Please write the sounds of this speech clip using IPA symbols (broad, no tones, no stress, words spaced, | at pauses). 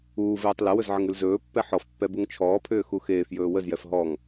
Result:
uːveːtˤ ləwɵz ʕəŋʉlzɵːpːɛ ħɔfpːɛ buŋt͡ʃʰɔːpʰʏː xuxeːfjɵː wəzjɛf ɦɔŋ